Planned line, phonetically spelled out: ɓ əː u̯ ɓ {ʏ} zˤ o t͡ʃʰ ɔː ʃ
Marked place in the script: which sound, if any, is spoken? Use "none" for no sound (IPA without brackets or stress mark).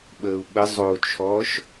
ə